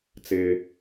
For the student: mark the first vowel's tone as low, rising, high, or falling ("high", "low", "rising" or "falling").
low